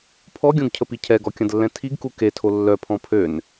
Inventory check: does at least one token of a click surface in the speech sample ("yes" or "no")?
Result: no